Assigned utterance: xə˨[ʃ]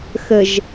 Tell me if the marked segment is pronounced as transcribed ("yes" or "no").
no